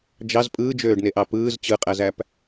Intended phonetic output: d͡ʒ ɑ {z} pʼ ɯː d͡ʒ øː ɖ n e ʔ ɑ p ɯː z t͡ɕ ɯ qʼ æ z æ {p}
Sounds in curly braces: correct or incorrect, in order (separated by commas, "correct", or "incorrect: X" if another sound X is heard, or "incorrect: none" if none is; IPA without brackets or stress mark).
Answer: correct, correct